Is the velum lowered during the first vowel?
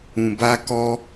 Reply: yes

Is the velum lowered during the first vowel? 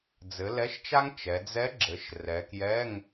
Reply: no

